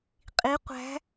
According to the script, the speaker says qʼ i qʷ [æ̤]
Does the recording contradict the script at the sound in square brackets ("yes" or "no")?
no